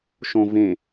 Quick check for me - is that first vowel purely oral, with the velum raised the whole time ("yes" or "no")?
no